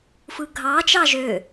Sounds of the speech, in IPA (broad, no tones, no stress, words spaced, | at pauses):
fɯɡʱɑ t͡ʃɑʒø